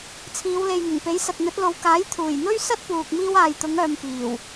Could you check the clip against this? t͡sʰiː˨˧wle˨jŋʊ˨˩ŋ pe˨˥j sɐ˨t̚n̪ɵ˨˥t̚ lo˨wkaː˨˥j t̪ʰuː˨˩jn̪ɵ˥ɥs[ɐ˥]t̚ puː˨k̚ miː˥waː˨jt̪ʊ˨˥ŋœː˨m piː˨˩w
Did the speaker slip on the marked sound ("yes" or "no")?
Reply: no